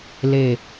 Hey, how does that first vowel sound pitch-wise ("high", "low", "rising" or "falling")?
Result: low